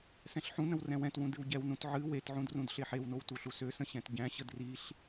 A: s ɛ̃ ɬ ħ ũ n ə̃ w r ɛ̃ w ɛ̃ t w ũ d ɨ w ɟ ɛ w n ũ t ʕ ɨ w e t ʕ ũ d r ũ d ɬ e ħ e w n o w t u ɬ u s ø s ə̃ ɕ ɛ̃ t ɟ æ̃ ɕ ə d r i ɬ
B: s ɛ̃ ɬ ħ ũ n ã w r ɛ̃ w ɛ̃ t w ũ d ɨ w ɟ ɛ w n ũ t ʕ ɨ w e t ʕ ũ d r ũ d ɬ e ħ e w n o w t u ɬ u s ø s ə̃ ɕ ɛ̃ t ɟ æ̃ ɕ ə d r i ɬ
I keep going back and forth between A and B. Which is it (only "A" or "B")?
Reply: A